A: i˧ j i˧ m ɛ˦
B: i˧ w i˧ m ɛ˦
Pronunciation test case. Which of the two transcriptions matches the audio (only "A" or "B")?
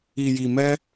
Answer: A